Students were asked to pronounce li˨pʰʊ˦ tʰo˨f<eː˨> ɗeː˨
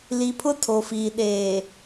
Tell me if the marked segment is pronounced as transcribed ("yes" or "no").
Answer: no